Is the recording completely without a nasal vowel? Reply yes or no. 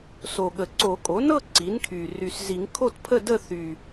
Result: yes